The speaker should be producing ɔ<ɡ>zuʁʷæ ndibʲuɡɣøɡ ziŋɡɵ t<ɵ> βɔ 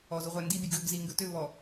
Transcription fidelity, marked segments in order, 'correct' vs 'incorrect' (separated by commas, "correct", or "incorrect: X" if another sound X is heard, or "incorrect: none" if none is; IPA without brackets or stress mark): incorrect: none, incorrect: ø